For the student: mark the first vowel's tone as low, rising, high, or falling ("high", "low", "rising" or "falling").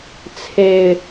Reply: low